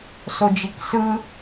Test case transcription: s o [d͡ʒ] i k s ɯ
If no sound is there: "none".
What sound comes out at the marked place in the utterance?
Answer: d͡ʒ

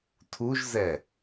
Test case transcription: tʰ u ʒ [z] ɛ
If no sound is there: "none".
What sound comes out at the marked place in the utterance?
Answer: z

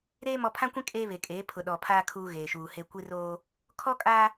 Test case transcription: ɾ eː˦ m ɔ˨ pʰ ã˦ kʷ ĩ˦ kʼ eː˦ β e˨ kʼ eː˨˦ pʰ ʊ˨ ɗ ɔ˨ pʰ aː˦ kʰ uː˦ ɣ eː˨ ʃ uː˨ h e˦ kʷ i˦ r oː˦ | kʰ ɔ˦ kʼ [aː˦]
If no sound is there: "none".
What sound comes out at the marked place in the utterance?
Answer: aː˦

